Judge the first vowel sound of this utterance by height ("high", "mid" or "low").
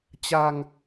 low